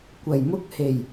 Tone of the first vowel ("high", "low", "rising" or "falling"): low